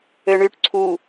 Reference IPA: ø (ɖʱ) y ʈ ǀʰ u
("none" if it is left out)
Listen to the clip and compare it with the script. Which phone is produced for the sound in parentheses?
ɳ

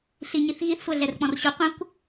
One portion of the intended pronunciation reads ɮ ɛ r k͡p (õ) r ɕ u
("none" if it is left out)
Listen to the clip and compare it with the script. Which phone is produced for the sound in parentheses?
ɔ̃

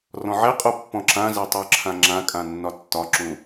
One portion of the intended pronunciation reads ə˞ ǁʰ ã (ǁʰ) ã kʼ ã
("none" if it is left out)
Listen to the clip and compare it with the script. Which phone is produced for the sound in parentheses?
ŋ͡ǁ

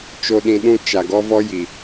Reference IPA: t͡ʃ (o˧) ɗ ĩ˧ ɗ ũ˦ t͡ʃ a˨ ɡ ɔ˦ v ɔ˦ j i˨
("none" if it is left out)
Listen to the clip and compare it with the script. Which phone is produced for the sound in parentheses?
o˧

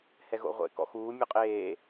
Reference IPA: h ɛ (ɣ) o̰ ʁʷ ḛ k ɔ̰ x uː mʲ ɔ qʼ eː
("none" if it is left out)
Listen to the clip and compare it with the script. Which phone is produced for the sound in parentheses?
ɣ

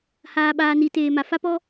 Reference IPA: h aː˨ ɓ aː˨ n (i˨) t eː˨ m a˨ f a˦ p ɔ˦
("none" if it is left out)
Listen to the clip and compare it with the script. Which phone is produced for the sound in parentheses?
i˨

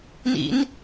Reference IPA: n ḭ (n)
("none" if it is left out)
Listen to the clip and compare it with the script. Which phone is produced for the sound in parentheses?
n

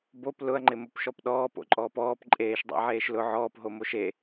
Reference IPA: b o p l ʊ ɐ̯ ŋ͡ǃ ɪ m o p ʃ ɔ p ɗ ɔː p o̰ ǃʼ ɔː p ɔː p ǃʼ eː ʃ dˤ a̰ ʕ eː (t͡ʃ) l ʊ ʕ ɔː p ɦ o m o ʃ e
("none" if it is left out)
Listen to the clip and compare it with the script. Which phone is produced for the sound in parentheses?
ʃ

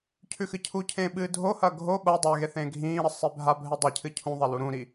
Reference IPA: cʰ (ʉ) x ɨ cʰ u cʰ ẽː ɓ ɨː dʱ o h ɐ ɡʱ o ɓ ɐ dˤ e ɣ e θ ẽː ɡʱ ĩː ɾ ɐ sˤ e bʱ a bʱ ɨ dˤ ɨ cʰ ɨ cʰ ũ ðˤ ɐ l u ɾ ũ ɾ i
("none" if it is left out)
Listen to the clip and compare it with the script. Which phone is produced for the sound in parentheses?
ʉ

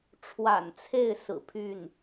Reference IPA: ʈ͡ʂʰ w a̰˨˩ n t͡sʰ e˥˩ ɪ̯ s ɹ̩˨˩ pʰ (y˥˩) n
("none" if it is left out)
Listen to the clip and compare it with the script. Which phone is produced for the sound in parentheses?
y˥˩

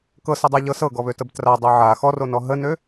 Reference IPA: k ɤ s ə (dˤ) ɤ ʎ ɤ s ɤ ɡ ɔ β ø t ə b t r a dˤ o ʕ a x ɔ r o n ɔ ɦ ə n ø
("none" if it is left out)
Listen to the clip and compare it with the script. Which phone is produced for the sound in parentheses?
dˤ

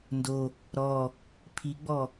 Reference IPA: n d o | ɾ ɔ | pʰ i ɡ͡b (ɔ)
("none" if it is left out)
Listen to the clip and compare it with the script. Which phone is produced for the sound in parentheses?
ɔ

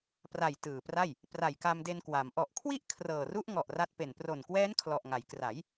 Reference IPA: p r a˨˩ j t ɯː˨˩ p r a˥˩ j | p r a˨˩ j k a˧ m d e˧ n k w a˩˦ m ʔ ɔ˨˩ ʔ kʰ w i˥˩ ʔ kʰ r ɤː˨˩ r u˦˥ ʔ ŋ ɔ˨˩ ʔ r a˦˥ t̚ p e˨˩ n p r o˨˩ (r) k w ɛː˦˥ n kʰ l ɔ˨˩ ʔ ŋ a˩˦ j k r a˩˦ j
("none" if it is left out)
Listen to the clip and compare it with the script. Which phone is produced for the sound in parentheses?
n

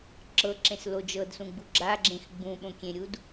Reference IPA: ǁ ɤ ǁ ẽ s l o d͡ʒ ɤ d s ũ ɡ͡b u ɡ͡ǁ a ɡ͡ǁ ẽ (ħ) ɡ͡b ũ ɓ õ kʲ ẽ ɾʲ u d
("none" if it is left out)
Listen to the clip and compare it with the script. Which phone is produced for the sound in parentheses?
x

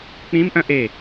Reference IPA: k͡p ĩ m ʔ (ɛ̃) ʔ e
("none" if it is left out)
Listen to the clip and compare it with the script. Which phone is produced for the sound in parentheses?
œ̃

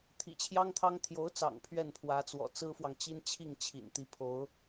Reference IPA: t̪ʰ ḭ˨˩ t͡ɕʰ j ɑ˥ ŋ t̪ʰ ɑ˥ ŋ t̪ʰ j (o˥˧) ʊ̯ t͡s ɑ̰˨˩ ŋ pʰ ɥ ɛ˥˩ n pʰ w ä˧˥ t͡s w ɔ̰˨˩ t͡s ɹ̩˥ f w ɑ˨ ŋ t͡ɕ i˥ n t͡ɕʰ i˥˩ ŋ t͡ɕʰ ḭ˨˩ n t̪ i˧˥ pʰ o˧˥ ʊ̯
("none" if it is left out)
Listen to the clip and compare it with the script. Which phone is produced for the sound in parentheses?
o˧˥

